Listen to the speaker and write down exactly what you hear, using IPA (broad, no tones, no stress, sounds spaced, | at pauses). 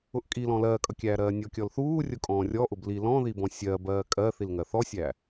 ʊ ʔ kʼ i l ɔ̃ l ɜː kʼ ʌ kʲ æː ɾ ɜː nʲ ɔ kʲ ɔ l θ uː rʲ ʊ kʼ ɔ̃ː rʲ ɔ ʔ ʊ b l i l ɔ̃ ð i b ɔ̃ sʲ ɜː b ɜː kʼ ɜ θ i l ŋ ɜ θ ɔ sʲ æː